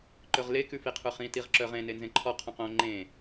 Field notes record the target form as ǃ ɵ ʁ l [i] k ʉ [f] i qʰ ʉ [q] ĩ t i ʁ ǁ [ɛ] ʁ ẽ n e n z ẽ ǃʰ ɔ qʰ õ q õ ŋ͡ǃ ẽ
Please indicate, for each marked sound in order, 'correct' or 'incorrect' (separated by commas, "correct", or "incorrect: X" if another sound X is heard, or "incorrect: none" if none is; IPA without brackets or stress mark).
incorrect: e, correct, incorrect: χ, incorrect: œ